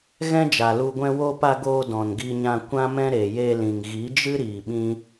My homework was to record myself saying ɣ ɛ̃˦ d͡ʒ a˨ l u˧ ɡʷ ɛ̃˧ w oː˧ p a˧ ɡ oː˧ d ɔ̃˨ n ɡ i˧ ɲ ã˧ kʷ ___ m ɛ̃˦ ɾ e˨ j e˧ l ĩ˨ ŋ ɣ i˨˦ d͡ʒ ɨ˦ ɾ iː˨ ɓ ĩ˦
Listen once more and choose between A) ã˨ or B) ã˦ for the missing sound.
B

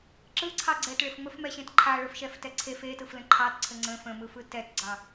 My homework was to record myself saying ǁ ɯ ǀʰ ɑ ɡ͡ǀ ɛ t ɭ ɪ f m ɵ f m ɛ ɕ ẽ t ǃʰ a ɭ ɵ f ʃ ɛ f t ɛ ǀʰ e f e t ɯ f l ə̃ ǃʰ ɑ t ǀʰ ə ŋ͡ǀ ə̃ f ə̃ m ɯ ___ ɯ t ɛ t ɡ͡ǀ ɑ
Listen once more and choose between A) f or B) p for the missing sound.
A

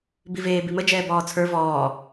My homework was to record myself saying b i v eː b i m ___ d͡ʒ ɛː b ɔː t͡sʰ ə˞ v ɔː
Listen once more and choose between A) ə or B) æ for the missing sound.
A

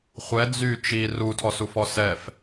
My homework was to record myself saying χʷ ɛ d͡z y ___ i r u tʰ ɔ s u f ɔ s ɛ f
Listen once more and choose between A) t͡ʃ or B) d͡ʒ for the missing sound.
A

